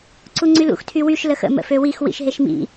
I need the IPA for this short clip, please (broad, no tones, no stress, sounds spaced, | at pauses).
ǀ u ŋ͡ǀ y l ṵ x tʰ y w y ʃ l ə x ə̰ m ə̰ f ø w i x w ḭ ʃ ɦ e ʃ m ḭ